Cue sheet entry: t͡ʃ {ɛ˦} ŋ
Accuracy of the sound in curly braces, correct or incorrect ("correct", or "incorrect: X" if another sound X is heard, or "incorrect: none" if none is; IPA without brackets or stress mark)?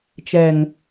incorrect: ɛ˨